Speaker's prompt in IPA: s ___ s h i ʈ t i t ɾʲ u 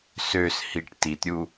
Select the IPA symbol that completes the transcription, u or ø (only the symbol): ø